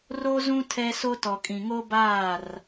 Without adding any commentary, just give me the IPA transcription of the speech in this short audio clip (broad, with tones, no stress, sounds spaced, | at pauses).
r o˦ z ũ˦ tʰ ɛ˦ s o˦ t ɔ˨ kʼ ĩ˨ ŋ o˦ b aː˦˨ r